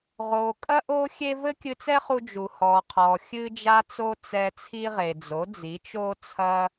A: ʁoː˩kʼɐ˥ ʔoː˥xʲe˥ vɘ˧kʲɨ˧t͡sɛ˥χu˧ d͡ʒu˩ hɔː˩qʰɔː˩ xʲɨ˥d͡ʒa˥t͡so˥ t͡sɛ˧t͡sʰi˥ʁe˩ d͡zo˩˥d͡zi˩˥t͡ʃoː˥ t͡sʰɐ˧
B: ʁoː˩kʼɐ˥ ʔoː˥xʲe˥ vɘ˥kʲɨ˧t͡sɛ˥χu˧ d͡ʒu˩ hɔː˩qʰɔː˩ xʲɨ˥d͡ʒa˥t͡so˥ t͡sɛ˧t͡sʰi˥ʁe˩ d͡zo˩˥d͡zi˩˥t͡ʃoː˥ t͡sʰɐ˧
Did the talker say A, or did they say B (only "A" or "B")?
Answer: B